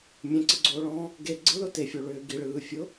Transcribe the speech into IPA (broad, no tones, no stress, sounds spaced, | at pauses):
mʲ ẽ ǀ ɯ ɡ͡ǀ oː ɭ ɔ̃ː | ɡ e ɡ͡ǀ ɯ l ʊ t e fʲ o ɭ ʏː ɡ i ɭ ɯː fʲ ʊ